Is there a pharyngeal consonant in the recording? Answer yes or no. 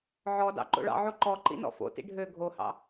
yes